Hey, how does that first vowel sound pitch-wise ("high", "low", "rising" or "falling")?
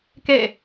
falling